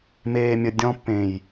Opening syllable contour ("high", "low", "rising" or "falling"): low